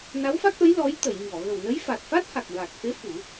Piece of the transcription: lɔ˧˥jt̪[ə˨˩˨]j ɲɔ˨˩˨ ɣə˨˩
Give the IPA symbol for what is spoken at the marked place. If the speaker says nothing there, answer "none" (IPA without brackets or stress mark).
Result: ə˨˩˨